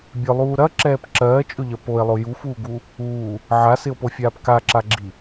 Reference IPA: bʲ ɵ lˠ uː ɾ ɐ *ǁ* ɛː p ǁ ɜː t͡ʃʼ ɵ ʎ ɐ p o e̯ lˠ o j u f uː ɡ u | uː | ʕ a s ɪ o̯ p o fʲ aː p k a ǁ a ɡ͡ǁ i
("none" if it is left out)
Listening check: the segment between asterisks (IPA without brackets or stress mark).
ǁ